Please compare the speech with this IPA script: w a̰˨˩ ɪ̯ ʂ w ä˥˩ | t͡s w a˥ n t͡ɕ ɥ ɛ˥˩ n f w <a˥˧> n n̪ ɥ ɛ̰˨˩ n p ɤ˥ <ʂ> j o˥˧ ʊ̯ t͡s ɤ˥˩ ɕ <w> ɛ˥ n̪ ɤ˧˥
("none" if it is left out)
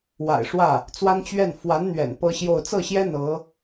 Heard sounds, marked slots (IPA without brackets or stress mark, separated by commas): a˧˥, ɕ, j